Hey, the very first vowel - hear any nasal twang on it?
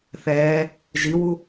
no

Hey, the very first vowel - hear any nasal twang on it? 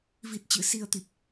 no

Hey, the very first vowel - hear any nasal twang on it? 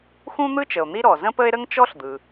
yes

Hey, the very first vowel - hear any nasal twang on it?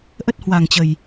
no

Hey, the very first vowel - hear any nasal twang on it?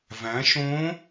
yes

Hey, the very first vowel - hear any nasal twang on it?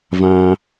yes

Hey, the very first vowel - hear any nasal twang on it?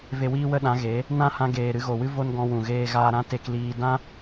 no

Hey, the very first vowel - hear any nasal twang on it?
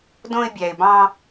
yes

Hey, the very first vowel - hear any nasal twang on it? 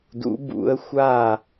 no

